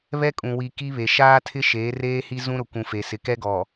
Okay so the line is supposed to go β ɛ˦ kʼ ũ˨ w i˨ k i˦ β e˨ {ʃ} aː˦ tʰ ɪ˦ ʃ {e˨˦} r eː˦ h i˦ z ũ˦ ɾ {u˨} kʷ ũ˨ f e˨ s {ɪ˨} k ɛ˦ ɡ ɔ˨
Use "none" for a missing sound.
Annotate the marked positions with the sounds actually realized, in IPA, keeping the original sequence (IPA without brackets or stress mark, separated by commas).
ʃ, eː˨˦, ʊ˨, ɪ˨